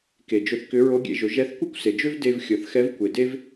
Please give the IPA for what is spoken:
k e˩ d͡ʒ ɵ˧ θ k ʏ˧˥ ɹ o˧˥ ɡʲ ḛ˩˧ ʒ ɵ˩˧ ʒ ɛ˧˥ θ kʷ ɤ˥ kʷ s e˩ d͡ʒ ø˥ v d e˧ v xʲ ɤ˩ θ x ɛ˧˥ v kʷ e˩ d e˥ v

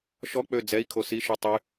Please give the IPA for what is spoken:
ʃ ɔ k͡p ø d͡z ɛ i̯ kʰ o s i ʃ u tˤ y

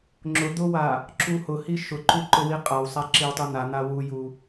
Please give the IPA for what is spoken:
ŋ͡ǁ ʊ d̪ ʊ w a | ǁ u h ʊ h i ʃ ʊ ǃ u ǃ ʊ w i qʼ a w sˤ a ǁ i w tˤ u n̪ a n̪ a w u j u

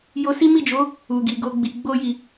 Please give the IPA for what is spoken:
j o˧ s i˦ m i˦˨ d͡ʒ o˨˦ | u˨ ɡ i˨ ɡ o˧ ɡ͡b i˨ ɡ͡b o˧ j i˨

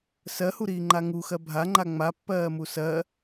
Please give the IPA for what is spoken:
s ɜ h u ɾ iː ŋ͡ǃ a ŋ u x ɜ bʱ a ŋ͡ǃ a ŋ͡m a pː ɜː m u s ɜ

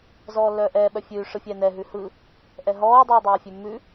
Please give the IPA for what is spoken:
z ɔː lː œː ʔ ɛː ɓ œ fʲ ʉː ʂ ɯ fʲ ɛː n ɛ ɦ ʉ h ɯ | ʔ ɛ ɦ ɔː dˤ ʉː dˤ œː fʲ ʉ mː ʉ

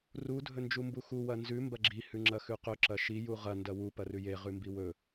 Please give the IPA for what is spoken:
r u dʱ ɵ n d͡ʒ u m b u x u w ɐ n z ʉ m b ɐ ɡ͡ǁ i h ʉ ŋ͡ǁ ɐ x ʉ q ɵ ǁ ɐ ʃ i j u ʁ ɐ n d ɐ w u p ɐ r ʉ j e ʁ ʉ m b i w ɵ

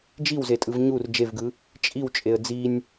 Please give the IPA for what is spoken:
d͡ʒ i w z e tʼ ɯ v ɲ u r d͡ʒ e v ɡ ɯ | t͡ʃʼ i w t͡ʃʼ e ə̯ d͡z i nʲ

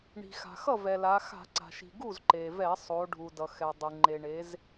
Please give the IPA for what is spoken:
ɳ i̤˩ x a̤˩ x ʌ˥˩ v ɛ˩ l a˩˧ x a̤˧˩˧ ǀ a̤˩ ʃ i̤˩ ɡ u˥˩ z ǃ e˩ v ɛ˧˩˧ sˤ o˩˧ ɖʱ u˩ d ʌ˩ x ɛ˩ dˤ ɯ˩ ŋ͡ǃ e˩ ɳ e˩˧ z

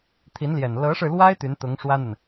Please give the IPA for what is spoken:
t̪ʰ i˧˥ n l j ɛ˨˩ n l ɤ˧˥ ʂ ɻ̩˧ l w a˥ ɪ̯ t̪ y˧˥ n t̪ ʊ˧˥ ŋ ʂ w ä˥ n̪ ə˨ n

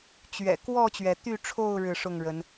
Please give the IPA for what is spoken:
t͡ɕ ɥ ɛ̰˨˩ k w ɔ˥˨ t͡ɕ ɥ ɛ˩ t̪ y˥˨ ʈ͡ʂʰ o˥˨ ʊ̯ ɻ ɻ̩˥˨ ʂ ʊ˥˨ ŋ ɻ ə˨˦ n

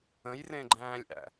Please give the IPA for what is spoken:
ə̃ j r ẽ ɡ͡ǃ æ̃ː lʲ ʔ æ̰

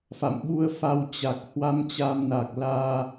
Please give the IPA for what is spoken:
f a̰˧˨ m ɓ u˧ ə̯ f a˧ w t͡ɕ a˨˩ k̚ h w a˧ m t͡ɕ a˧ m n a˨˩ k̚ l aː˧

